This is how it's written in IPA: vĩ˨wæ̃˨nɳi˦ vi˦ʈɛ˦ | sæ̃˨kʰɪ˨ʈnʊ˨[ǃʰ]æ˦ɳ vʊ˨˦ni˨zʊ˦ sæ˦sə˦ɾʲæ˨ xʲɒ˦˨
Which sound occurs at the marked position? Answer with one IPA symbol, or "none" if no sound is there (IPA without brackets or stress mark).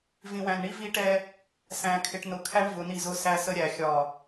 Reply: kʰ